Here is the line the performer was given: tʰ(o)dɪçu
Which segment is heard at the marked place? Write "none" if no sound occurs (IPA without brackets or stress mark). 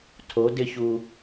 o